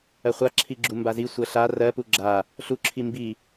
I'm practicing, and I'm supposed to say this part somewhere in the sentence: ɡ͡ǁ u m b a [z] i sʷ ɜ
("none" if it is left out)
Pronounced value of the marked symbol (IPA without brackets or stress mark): z